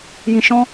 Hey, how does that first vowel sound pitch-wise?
low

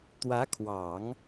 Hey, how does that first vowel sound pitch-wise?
rising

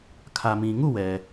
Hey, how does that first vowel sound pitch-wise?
low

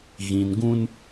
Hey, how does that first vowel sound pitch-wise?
low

